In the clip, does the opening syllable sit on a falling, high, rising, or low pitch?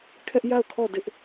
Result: high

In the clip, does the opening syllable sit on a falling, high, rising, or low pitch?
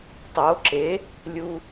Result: rising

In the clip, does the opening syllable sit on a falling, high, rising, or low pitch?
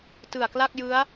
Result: low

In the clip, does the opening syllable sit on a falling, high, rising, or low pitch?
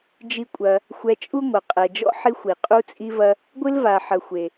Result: high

